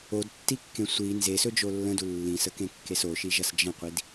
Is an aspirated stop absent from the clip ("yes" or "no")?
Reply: yes